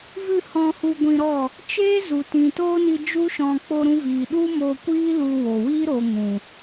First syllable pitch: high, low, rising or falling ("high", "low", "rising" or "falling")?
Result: falling